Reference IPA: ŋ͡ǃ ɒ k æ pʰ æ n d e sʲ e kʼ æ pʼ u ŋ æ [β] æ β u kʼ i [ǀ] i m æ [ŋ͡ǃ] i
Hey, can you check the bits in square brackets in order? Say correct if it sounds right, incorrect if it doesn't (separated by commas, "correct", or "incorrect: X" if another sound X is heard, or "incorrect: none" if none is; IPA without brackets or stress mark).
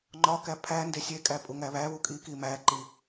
correct, incorrect: k, incorrect: ǃ